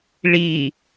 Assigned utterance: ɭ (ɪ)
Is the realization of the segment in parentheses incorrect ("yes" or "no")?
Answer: yes